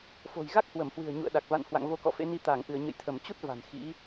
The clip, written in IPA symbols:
f o̤˨˩ j ɣ a˦˥ k̚ h w ə˧˩ m h w ɨ̤˨˩ ə̯ ɲ ṵ˧˨ ə̯ ɗ a˨˩ k̚ v a̰˧˨ n h w a̰˧˨ ŋ v o˧ k ɔ̰˧˨ f ḛ˧˥ n i˧ t̪ aː˧˩ ŋ ʔ ɨ˧˩ ə̯ ɲ ə̰˧˨ j t̪ʰ ə˧˩ m t͡ɕ u˦˥ t̚ v a̤˨˩ n x ḭ˧˥

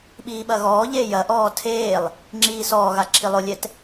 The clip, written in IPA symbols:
ɓ iː ɓ ɐ ɣ ɔː ʎ eː j ɐ ʔ ɔː tʰ eː lˠ | ŋ͡ǁ iː s ɔː ɣ a ǁʰ i lˠ o lʲ ɛ t

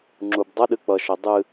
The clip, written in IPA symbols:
ŋ͡ǁ u b dˤ ʌ ɗ ɨ k͡p ʌ ʃ ə dˤ ɨ

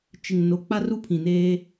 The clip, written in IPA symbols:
t͡ʃ ɪ˨ ŋ n o˨˦ k͡p a˦ r u˦ pʰ ĩ˨ n eː˦

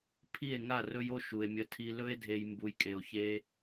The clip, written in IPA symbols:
pʰ i˦˨ e̯ ŋ a˦˨ r ɵ˧ j o˦˨ ʃ u˨ e̯ mʲ ə˧ tʰ i˧ l ɵ˦ e̯ dʱ e˧ j m b u˨ j kʼ e˨ o̯ ç e˧

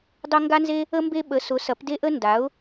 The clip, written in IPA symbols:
dˤ ɐ˥ ŋ ɡ a˥ n z e˥ | ə˥ m b e˥ ɓ ə˨˥ s ʊ˨˥ s ɐ˨˥ p d e˥ ʔ ə˥ n d a˨˥ ʊ̯

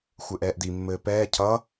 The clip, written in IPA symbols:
xʷ ɘ ʔ ɛː ʔ d i mː ɘː p ɛː cʰ ʌ

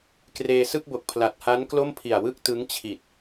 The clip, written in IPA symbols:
k r eː˧ s ɯ˥˩ k̚ b o˨˩ k̚ pʰ l a˨˩ t̚ h a˦˥ n k l o˥˩ m pʰ i˨˩ a̯ w ɯ˥˩ k̚ t ɯ˦˥ ŋ t͡ɕʰ i˨˩ t̚

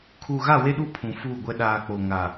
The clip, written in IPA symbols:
kʰ uː˨ ɣ a˦˨ w e˦ ɗ u˦ pʰ ũ˨ f uː˦˨ ɡʷ ɛ˦ ɗ aː˨ k͡p o˨ ŋ a˨

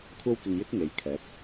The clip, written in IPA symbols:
kʷʰ ɐ˥ w k ɪ˧ ŋ j ɪ˥ k̚ ŋ e˨ j kʰ ɛː˨˥ p̚

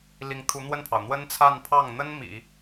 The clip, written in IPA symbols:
l i˧˥ ŋ t̪ʰ u˧˥ n̪ w ə˥˩ n pʰ ɑ˩ ʊ̯ n̪ w ə˥ n t͡sʰ a˥˧ n pʰ ɑ˥˩ ŋ n̪ ə˥ n m ḭ˨˩˦

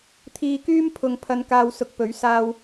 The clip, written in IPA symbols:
t̪ʰ iː˧ k yː˥ m pʰ ʊ˨ ŋ pʰ ɐ˨˧ n k aː˧ w s ʊ˨˥ k̚ p ɵ˨˥ ɥ s aː˥ w

